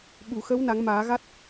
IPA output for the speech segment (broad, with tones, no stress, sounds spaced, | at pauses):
ɓ u˨˩˨ x ə˧˥ w n a˨˩˦ ŋ m aː˨˩˦ ɣ a˦˥ t̚